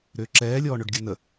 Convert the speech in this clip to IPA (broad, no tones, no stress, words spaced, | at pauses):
ɾʏːǁɛː lʲɔːɳøɖɡʲɘnə